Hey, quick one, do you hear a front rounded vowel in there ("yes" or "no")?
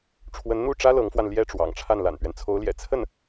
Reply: no